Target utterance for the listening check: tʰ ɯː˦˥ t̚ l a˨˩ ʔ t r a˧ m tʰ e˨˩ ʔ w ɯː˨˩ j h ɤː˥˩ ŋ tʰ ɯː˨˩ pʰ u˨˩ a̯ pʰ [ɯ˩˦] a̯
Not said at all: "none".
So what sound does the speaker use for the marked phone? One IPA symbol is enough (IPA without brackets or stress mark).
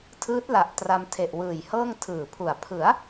ɯ˩˦